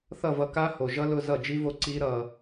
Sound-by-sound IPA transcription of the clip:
θʌ˥˩vʌ˧ka˦˥ho˨˩ ʒʌ˦˥lʊ˧˥˧ zʌ˥˩d͡ʒi˦˥vo˥˩ ǀi˦˥ɾʌ˧

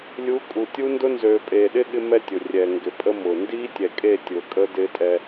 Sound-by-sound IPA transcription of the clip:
lʲu˨˦kʼu˨tʲu˦ndʊ˦ nzøː˨pʼeː˨ɗɪ˦ ɠɪ˦mɛ˦tʲʊ˨ rʲɛ˨ŋɡɪ˨ pʼə˦mʊː˨ ndiː˦tʲɛ˨kʼe˦˨ tʲʊː˨kʼə˦ dɪː˦tʼɛ˦

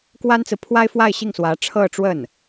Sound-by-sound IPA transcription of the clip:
kwa˥nt͡sɹ̩˨ pʰwa˥ɪ̯fwa˥˧ɪ̯ ɕi˥˩ŋswä˧˥ ʈ͡ʂʰɤ˥˧ʈ͡ʂwə˥˩n

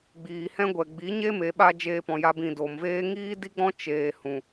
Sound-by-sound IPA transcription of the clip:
ɡ͡biː˨hɛ̃˦ɡʷɛ˨ ɡ͡bi˨˦ɲe˦me˨ɓa˧ d͡ʒeː˧pɔ̃˨ja˧bĩ˨ do˨mveː˦ ŋiː˦di˦ɡ͡bɔ̃˦ t͡ʃeː˧ hũ˨

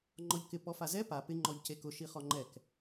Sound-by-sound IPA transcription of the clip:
ŋ͡ǃɔʎkɪ pɔfazɛ pa pɪ ŋ͡ǃɔʎcekʊ ʃiχɔŋ͡ǃɛk

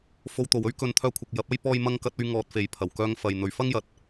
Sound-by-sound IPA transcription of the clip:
fo˧wt̪o˨w ɵ˥ɥkɵ˨˧nt̪ʰœː˧kʷʰɐ˨k̚ jɐ˨˥p̚ɐ˥j pɔː˥jmɐ˥ŋkɐ˥t̚ɵ˥ɥ ŋɔː˧t̚fe˨j pʰɐ˨˩wkœː˧ŋ fɐ˨j n̪ɵ˨ɥfɐ˥ŋjɐ˨˥t̚

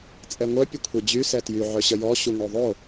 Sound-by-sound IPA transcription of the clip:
t͡sʼɛŋʷœ pʲəkʷʰed͡ʑy sɛtjy ʕœɕəjɔ ɕuŋoðˤo

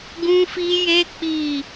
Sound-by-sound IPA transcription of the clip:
ɡũ˦fi˦je˦ k͡pi˦˨

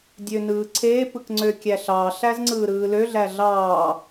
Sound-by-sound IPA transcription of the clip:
dʲønɯːǀʰe pɯkŋ͡ǀøkʲæɬɑ ɬæzŋ͡ǀɯːɾɯːlø ɮæɮɑː

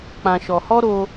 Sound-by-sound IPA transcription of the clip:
k͡pã˨ ʃɔ˨hɔ˦ɾo˧

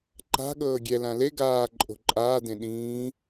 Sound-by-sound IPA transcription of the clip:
ǃa̤ ɠɤːɡʲɛ lãle ɡaː ǃʼo̤ǃʼaː dẽɗĩː

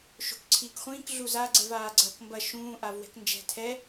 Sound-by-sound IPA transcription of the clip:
ʃo̤kǀʰiːkχʷĩːk ɮuza ɡ͡ǀɛvaːɡ͡ǀɐːkmbɐ ʃũː ʔavwɛ̤knd͡ʒɛ̤ tʰɛ

